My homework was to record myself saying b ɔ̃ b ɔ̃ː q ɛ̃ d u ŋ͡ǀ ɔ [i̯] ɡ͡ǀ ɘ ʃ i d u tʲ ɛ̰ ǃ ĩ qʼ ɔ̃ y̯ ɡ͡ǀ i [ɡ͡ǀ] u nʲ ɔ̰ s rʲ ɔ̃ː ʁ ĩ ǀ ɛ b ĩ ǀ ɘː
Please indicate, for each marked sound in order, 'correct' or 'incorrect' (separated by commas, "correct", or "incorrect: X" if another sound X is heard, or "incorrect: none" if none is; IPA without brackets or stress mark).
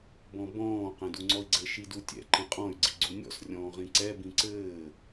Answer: correct, correct